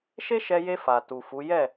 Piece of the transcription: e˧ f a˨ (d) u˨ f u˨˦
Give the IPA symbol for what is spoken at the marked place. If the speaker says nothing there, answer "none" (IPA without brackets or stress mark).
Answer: t